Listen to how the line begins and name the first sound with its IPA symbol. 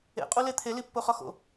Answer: ḛ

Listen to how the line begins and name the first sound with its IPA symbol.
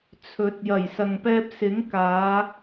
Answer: t͡sʰ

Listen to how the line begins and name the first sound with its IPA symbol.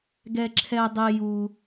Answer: ɡ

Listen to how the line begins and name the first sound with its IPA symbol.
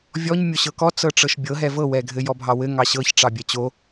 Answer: vʲ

